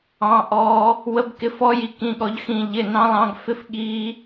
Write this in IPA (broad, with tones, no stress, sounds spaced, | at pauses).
ɑ̃˦˥ ʔ ɔː˦˥ | w ə˦˥ b k ɪ˧˥˧ f ɔ˦˥ j i˦˥ k ĩ˧˥˧ ɠ ɔ˦˥ ʎ x ĩ˦˥ ʎ ɪ˧˥˧ n ɑ̃˦˥ lˠ ɑ̃˦˥ ɡ f ɪ˦˥ f ɠ iː˦˥